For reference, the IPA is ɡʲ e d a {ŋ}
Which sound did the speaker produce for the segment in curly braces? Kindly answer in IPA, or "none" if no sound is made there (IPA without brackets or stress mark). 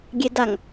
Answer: ŋ